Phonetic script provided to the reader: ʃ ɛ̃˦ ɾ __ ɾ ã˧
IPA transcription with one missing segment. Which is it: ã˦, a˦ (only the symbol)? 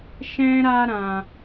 a˦